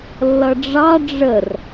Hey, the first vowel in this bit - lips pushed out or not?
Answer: no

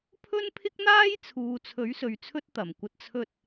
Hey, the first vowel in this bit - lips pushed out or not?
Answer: yes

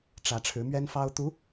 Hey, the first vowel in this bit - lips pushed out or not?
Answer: no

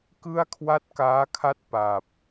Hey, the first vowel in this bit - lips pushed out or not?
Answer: no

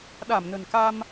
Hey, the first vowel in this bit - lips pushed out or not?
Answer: no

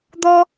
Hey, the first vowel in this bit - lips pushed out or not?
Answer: yes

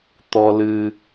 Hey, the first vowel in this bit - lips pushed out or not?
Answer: yes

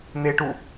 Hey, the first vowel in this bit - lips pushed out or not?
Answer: no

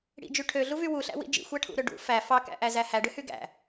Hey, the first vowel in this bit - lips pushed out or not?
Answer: no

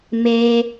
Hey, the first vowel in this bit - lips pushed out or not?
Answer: no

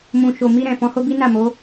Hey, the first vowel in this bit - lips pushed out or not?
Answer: yes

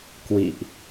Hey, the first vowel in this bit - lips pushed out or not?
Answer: no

